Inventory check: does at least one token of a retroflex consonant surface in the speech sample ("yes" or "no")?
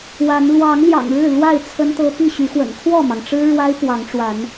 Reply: yes